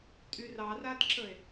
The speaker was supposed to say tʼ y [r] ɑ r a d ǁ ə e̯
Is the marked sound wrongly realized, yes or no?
no